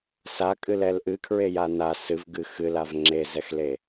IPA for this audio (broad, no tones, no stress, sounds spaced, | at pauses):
s a kʼ ɨ l ɛ l ʔ ɨ kʰ ɹ e j a n a s ɨ v ɡ ɨ x ɨ l a v ŋ͡ǁ e z ɛ x l e